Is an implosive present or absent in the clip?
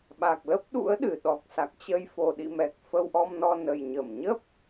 present